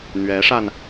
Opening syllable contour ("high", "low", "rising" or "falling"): rising